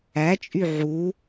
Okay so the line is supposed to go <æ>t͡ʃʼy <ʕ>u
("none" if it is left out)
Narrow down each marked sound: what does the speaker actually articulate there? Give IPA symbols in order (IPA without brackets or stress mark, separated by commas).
æ, ʕ